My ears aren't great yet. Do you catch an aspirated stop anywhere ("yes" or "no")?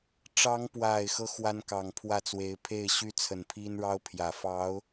yes